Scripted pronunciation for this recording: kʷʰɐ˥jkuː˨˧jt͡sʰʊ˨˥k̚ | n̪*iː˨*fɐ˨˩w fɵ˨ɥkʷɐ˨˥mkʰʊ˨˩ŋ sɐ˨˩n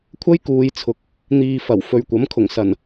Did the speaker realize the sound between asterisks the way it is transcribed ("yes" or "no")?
yes